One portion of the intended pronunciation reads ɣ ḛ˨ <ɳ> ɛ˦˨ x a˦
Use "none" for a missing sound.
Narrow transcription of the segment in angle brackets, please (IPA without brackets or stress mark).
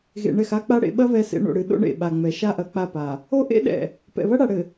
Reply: ɳ